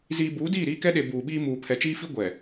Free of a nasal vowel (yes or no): yes